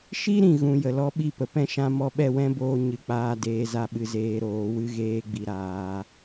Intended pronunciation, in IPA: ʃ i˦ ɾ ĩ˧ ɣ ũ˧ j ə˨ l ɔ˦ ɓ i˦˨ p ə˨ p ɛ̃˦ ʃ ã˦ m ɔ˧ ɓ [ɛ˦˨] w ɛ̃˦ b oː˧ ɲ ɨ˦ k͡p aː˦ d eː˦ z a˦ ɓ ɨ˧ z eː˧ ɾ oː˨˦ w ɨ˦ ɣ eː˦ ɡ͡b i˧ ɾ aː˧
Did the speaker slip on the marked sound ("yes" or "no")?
no